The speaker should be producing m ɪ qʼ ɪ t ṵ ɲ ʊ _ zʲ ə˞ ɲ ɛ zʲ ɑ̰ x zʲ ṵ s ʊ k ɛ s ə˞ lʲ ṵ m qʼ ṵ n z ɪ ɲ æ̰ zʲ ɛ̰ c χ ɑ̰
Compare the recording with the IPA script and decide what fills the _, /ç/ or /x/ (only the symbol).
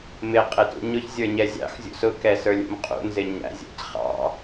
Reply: ç